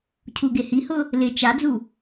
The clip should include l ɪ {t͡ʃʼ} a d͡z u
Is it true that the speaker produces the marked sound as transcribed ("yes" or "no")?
no